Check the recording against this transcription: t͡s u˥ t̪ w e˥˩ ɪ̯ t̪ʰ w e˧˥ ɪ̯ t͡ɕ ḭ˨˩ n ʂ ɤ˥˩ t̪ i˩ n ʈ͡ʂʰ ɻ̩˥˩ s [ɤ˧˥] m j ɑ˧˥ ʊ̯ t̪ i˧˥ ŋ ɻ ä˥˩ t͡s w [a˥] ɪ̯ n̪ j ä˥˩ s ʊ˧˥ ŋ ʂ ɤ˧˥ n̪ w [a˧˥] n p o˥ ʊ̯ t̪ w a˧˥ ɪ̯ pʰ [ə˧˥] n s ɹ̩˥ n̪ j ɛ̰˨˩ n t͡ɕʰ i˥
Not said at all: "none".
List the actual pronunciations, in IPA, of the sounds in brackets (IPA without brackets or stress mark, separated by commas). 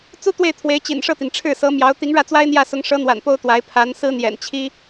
ɤ˧˥, a˥, a̰˨˩, a˧˥